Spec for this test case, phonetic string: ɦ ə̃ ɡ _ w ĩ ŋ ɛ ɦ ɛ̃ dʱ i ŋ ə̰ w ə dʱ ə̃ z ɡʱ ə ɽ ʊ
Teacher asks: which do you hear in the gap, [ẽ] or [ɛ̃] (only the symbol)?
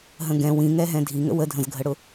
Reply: ɛ̃